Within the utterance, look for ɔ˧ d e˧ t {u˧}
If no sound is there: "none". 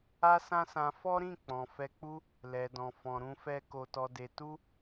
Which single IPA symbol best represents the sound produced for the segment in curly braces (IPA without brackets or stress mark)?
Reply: u˦